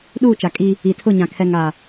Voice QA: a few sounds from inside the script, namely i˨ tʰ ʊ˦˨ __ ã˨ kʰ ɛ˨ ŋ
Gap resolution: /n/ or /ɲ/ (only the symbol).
ɲ